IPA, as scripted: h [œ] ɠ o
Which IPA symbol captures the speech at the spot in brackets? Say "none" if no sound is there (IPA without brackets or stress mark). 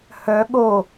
œ